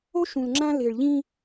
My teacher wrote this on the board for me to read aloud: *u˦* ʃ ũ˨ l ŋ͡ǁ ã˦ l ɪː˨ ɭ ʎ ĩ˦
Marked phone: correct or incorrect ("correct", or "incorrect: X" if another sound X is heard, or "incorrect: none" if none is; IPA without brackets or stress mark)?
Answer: incorrect: o˦